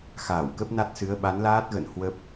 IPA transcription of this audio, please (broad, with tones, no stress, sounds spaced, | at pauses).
x aː˧˩ w k ə˦˥ p̚ n a˦˥ t̚ s ɨ˨˦ ə̯ ɓ a˨˦ n l aː˦˥ t̚ ɣ ə̰˧˨ n h w ə˦˥ p̚